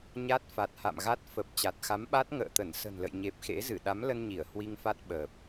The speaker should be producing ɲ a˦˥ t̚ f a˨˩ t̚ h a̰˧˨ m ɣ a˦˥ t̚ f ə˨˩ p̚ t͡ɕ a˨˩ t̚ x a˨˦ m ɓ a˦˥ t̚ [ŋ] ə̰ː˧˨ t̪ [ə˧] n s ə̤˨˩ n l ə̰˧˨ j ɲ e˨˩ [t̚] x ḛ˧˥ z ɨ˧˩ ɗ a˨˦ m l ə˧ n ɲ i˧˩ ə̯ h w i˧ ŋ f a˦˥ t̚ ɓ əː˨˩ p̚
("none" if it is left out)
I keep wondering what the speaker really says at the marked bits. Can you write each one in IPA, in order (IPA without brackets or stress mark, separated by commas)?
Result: ŋ, ə˧˩, p̚